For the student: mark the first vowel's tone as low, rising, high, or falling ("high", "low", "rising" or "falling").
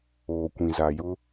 low